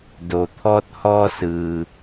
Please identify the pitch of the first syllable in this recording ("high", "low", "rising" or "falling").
low